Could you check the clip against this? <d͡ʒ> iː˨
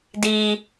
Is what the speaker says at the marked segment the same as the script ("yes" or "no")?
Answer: no